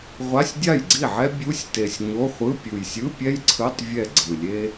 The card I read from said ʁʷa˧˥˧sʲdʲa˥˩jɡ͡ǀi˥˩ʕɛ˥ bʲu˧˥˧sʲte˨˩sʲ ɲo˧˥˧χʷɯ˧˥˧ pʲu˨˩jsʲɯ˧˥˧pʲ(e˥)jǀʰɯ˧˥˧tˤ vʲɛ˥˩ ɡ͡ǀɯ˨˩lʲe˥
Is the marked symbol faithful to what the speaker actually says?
no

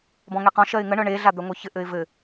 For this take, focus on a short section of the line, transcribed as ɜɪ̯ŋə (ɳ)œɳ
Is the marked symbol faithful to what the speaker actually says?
yes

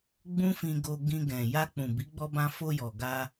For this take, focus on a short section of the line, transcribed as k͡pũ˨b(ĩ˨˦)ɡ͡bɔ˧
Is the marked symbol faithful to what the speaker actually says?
no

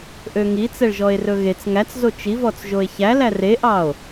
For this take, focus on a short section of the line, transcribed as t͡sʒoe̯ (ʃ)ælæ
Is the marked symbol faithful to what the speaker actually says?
no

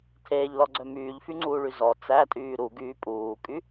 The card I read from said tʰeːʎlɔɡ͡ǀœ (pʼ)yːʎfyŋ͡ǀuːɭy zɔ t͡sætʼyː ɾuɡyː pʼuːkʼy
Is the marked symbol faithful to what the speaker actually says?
no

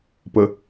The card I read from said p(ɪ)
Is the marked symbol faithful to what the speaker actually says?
no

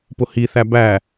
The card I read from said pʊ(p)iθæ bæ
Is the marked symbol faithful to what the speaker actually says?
no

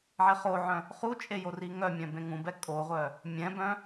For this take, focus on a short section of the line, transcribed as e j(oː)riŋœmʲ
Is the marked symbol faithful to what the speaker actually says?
no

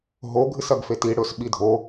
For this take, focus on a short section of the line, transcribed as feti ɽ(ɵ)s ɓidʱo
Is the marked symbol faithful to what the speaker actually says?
yes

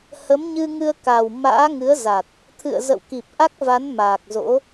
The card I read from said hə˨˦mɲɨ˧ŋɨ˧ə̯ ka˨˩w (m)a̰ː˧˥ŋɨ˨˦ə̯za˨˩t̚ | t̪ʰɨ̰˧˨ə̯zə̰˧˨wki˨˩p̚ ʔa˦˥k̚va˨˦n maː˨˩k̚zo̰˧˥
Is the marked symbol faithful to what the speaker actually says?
yes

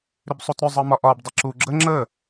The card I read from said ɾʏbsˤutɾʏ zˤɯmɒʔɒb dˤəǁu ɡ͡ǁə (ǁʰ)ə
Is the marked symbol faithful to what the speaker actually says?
no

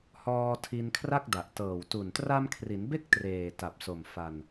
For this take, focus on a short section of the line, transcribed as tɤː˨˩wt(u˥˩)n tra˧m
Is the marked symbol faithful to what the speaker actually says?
no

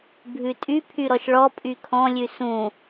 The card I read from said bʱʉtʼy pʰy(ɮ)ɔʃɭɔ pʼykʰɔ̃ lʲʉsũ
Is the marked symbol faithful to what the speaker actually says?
no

